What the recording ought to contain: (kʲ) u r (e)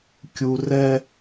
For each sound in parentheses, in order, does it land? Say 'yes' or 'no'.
yes, no

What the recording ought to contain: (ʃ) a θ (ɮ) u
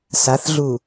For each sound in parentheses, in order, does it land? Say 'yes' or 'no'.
no, yes

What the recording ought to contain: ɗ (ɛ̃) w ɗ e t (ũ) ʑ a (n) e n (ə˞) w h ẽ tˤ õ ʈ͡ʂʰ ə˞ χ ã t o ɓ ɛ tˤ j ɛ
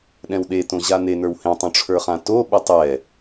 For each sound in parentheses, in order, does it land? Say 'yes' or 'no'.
yes, no, yes, yes

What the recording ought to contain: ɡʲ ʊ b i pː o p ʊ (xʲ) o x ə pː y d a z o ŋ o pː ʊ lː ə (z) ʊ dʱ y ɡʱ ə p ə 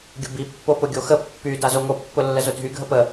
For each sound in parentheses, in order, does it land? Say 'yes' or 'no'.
no, yes

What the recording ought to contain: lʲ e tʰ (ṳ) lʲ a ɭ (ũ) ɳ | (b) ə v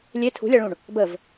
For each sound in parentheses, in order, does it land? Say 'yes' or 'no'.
yes, yes, yes

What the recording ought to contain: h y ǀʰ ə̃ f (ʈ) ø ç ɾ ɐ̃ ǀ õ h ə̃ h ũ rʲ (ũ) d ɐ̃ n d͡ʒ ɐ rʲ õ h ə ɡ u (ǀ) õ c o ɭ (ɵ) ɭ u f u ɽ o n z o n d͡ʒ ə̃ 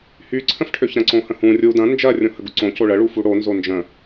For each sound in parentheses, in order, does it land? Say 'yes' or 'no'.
no, no, yes, no

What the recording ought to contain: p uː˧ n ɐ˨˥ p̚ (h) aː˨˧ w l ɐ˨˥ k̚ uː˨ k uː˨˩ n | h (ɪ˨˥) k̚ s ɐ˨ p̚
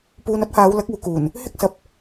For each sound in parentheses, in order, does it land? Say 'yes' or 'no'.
yes, no

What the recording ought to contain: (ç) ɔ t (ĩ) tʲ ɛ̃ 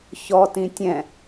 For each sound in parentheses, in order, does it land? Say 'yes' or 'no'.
yes, yes

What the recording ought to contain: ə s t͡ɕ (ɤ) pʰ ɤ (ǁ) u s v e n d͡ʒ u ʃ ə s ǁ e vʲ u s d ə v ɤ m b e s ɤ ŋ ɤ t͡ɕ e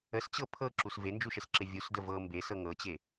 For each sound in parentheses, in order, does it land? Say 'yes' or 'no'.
yes, yes

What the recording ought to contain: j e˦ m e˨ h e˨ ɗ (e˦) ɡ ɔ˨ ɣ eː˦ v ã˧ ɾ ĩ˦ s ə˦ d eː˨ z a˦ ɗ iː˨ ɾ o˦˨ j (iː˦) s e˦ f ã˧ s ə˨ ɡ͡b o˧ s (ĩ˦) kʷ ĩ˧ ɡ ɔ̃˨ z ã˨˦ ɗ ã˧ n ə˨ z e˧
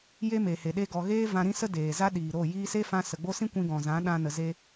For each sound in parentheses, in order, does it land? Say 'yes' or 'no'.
no, no, yes

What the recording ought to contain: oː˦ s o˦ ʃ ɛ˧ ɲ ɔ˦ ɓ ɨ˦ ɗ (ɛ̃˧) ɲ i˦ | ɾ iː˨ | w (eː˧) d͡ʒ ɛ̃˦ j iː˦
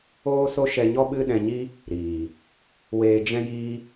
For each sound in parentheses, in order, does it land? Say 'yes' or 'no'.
yes, yes

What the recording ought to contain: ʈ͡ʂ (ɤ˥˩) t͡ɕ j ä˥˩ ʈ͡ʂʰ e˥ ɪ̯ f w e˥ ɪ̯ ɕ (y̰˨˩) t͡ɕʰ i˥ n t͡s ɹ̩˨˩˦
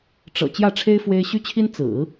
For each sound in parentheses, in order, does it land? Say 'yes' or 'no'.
no, no

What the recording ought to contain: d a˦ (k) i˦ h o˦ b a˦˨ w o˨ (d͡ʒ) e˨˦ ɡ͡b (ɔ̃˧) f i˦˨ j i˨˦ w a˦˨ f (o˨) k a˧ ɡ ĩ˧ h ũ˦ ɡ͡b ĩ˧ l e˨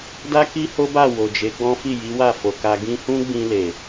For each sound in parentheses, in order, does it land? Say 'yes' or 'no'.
yes, yes, no, yes

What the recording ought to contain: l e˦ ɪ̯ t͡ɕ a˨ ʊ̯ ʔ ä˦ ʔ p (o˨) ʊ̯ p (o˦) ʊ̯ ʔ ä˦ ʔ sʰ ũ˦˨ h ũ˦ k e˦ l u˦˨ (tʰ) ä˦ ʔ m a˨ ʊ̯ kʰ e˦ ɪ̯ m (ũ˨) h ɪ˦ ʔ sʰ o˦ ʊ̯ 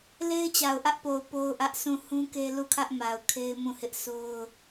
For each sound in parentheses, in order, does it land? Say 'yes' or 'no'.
yes, yes, no, no

